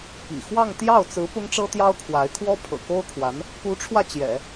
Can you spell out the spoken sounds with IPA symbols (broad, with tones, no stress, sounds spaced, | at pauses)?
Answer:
p ḭ˨˩ x w ɑ˥˧ ŋ t̪ j ɑ˥˩ ʊ̯ t͡s ɹ̩˧˥ p ʊ˥ ŋ ʈ͡ʂ ɤ˥ t̪ j ɑ˥ ʊ̯ kʰ w a˧˥ ɪ̯ kʰ w ɔ˥ pʰ ɤ̰˨˩ k o˥ ʊ̯ kʰ w a˧˥ n | k u˧˥ ʈ͡ʂʰ w ä˧ t͡ɕ j ɛ̰˨˩˦